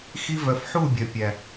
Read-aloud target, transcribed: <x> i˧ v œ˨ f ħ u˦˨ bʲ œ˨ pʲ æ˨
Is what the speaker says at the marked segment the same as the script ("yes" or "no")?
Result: yes